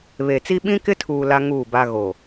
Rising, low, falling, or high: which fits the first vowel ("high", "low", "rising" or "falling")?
low